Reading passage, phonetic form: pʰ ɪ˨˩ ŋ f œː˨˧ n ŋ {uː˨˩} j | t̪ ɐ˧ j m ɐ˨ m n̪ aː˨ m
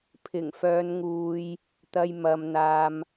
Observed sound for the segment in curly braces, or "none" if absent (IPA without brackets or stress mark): uː˨